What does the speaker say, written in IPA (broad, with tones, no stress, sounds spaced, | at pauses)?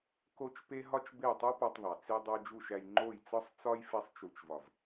k o˦ t͡ʃ p e˦ ɦ ɒ˦ t͡ʃ b e˦˨ tˤ u˦ p ɒ˧ tˤ ðˤ æ˨ t͡s i˧ dˤ o˧ d͡ʒ u˦˨ ʃ æ˧ j ŋ͡ǃ o˦˨ j t͡s ɒ˦ sˤ t͡s ɒ˦ j f e˧ sˤ t͡ʃ u˨ t͡ʃ v ɒ˨ v